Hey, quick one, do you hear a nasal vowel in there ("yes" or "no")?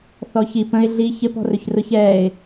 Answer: yes